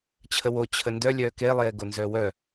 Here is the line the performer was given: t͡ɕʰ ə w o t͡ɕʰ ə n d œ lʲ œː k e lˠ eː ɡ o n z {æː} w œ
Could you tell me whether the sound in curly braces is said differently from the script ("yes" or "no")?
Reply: yes